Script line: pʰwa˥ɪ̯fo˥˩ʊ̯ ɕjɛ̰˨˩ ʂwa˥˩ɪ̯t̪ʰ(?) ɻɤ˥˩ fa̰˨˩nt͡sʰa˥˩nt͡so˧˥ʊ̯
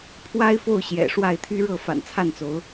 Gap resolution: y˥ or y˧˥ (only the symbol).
y˥